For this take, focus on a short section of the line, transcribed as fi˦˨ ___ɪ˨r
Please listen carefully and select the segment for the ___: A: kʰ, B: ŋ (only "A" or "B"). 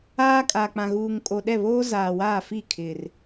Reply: A